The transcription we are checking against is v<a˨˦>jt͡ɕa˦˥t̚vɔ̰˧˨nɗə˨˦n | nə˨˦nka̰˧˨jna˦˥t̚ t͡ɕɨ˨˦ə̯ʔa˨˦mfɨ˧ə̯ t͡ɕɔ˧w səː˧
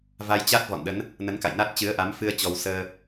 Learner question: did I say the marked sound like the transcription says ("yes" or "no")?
no